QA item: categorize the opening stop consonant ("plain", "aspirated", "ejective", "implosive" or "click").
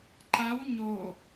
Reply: click